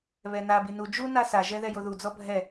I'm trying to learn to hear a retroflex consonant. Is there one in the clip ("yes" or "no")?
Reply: no